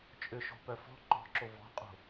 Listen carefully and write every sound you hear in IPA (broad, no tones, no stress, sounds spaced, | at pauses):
t͡ʃʼ ʏ ʃ o̤ p œ f ɔ̤ ǃ ɔ̤ ǁ o v ɔ̤ qʼ o̤